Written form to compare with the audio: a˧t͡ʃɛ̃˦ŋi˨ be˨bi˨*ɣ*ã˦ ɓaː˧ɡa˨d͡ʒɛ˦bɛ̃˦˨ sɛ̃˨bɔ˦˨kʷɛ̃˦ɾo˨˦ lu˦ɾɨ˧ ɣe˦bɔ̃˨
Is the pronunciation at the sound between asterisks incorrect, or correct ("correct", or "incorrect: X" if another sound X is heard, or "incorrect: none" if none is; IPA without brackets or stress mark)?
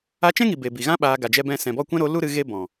correct